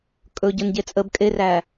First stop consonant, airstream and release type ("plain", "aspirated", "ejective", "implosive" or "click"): ejective